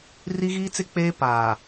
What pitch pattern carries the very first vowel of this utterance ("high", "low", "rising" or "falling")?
high